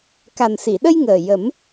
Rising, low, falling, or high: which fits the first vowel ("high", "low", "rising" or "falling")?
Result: low